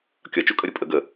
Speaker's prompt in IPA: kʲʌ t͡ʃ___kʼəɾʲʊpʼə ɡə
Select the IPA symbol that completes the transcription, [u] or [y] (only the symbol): u